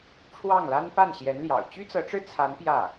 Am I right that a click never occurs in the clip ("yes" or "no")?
yes